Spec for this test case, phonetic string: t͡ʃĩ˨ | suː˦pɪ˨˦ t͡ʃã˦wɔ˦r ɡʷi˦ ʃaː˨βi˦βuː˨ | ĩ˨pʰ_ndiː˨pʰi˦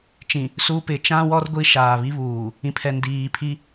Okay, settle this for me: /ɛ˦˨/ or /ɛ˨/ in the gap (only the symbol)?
ɛ˨